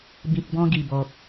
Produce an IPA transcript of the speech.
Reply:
b ĩ˨ k̚ b ɔ̃˧ ɡ i˨˩ b ɔ˨ k̚

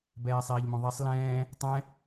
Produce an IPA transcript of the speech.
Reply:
b ɛː sˤ iː ʎ m õ ðˤ i sˤ l ɛ̃ː | tˤ ɛ̃

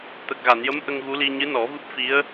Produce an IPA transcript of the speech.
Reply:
t̪ ə˨˩ k̚ ɣ a˨˩˨ n j ə˧˥ m ʔ ə˧ ŋ ɣ u˧˥ l i˧ ɲ ɨ˧˥ n ɔ˨˩˦ v ɨ˦˥ p̚ f i˧˥ ə̯

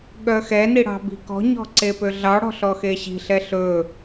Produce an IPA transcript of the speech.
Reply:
ɠ œ x ɛ n i ɽ ɑ̤ b i̤ k ɔ̤ ɲ ɔ̤ ǀ e p ø ɮ ɑ ɽ ɔ̤ ɬ ɔ x e ɕ i̤ ɬ ɛ ɬ ɵ

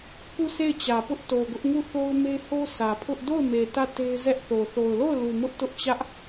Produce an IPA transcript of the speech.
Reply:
k u˦˨ sʰ e˦˨ ɪ̯ t͡ɕ ä˨ p ʊ˦ ʔ t o˨ ɡ ʊ˦ ʔ ŋ u˦˨ θ o˦ ʊ̯ m e˦ h o˦ sʰ ä˨ pʰ ʊ˦ ʔ d o˦˨ ʊ̯ m e˨ t ä˦˨ t e˦ ɪ̯ z ɛ˦ ʔ θ o˨ θ o˨ ʊ̯ l o˦˨ ʊ̯ l u˨ m ʊ˦ ʔ t ʊ˦ ʔ t͡ɕ ä˦ ʔ

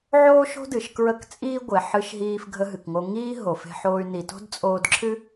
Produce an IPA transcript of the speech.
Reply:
ʕ oː˦ ʃ o̤˦ d ɨ˨ ʃ k ɹ ə˦˨ k t͡sʼ iː˦ ɡʷ e˨ ħ ɨ˧ ʃ ɦ iː˧ f ɡʱ ə˧ ɦ ɨ˨ k ŋ o˧ ŋ iː˦ ɦ o˨ f e̤˧ ħ oː˧ y̯ n i˨ t o̤˦ d t͡sʼ oː˧ d ǁʰ ɨ˦

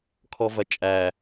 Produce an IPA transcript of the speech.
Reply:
kʰ ɔ v ɐ t͡ʃʼ æ

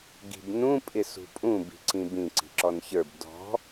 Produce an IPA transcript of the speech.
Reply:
ɡ i̤ b n ũ pʼ ɪ s ṳ pʼ ũ b i̤ ǀ ĩ b ĩ ǀ i̤ ǁ ɔ n ç ə˞ b d ɔ̤

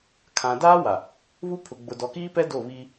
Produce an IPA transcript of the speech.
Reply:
kʰ ã˨ d aː˦ w a˨ | β u˦ pʰ ʊ˨ ɡ͡b ʊ˨ d ɔ˨ k iː˦ p ɛ˦ d o˦˨ β i˦

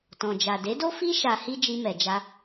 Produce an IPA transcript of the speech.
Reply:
t ɔ̃˨ d͡ʒ a˨ d e˨˦ d o˦ f i˦ ʃ a˧ h i˦ d͡ʒ i˧ m ɛ˨ d͡ʒ a˧

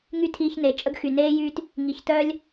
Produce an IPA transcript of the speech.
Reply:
ŋ y˦ tʰ iː˧ ç n e˨ t͡ʃʼ ə˦ ɡ x y˨ n eː˦ j yː˦ t | ŋ i˨ ç t œː˦ lʲ

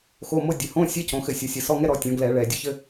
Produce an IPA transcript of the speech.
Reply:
x o˧˥˧ m o˥ dʲ ɘ˩˧ h õ˧˥˧ sʲ ɛ˧˥˧ c õ˩˧ x ɘ˧˩˧ sʲ ɔ˩˧ sʲ ɘ˨˩ s ɔ˧˥˧ ŋ ɛ˥ ɾ ɔ˩˧ tʲ ɔ̃˩˧ ɡ l ɛ˧˩˧ ɭ ɛ˨˩ dʲ ɘ˥ ç ɘ˥

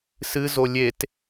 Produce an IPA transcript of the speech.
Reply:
s ɨ z o lʲ e t

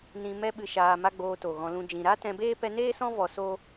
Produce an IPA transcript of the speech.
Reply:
n ĩ˧ m ɛ˦ ɓ ɨ˧ ʃ aː˧ m a˦ ɡ͡b oː˧ t o˨ ɣ ɔ̃˧ l ũ˦ d͡ʒ ĩ˧ ɾ a˦ t ɛ̃˧ b eː˦ p ɛ˧ n eː˦ s ɔ̃˦ v ɔ˧ s o˦

